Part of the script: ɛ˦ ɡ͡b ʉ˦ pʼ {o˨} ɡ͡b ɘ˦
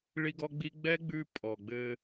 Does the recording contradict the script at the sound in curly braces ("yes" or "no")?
yes